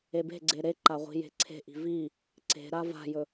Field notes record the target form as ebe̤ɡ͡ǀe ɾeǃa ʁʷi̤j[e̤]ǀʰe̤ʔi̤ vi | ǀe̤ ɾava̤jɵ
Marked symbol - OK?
yes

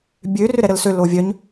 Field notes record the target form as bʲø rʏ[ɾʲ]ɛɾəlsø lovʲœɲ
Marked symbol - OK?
no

